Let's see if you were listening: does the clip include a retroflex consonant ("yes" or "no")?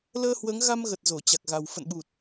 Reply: no